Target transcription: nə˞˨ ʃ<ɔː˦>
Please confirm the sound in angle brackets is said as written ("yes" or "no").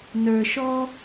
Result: yes